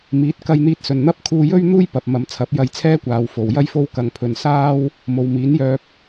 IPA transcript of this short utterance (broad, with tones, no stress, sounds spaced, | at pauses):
m iː˨˥ t̚ k ɐ˧ j n̪ iː˧ t̚ s ɵ˨ n n̪ ɐ˥ p̚ kʰ uː˧ j ɵ˥ ɥ n̪ uː˥ j p ɐ˨ p̚ m ɐ˨˧ m t͡sʰ ɐ˨˥ p̚ j ɐ˧ j t͡sʰ ɛː˥ kʷ aː˨˧ w f o˨ w j ɐ˥ j f o˥ w k ɐ˧ ŋ pʰ ɵ˧ n s aː˥ w | m o˨ w m iː˨˥ n j œː˧ p̚